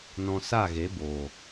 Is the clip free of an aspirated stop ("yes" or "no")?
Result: yes